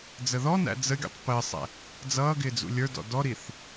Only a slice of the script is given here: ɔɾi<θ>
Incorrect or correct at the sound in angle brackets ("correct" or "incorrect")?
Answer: correct